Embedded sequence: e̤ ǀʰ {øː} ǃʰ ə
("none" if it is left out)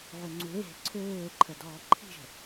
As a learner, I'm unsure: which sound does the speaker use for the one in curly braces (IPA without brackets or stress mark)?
øː